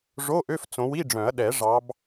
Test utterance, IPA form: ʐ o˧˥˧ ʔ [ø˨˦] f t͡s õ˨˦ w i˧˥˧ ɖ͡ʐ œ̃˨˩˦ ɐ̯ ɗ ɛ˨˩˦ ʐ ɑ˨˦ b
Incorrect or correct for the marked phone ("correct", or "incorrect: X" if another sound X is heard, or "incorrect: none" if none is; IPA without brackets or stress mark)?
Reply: incorrect: ø˧˥˧